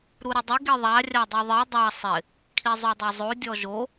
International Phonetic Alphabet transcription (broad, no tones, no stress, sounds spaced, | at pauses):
ɾ u ɾ ɪ dˤ ɪ ɡ i ðˤ a rʲ a dˤ i ðˤ i dˤ a sˤ ɪ | kʰ i zˤ u dˤ o zˤ o dʲ ɔ ʒ o